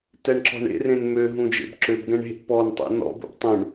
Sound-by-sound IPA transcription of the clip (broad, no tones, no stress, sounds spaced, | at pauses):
t ɛ ɳ ǁ ɔ̤ ɳ ḛ r ẽ n m ø ɦ ũ d͡ʒ ḛ b ǁ ø b ɡ ɛ̃ ɳ e̤ ʔ p ɔ n tˤ ṵ n ɔ̰ b ṵ b tˤ ũ ɳ